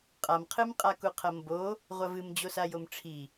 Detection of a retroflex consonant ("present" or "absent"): present